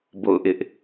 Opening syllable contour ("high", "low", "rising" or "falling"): falling